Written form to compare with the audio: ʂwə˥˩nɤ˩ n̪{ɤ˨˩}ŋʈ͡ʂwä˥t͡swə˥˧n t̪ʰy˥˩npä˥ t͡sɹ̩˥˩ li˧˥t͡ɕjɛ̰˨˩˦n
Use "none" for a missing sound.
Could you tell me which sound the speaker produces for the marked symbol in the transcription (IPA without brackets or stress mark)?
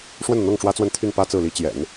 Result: ɤ˥˩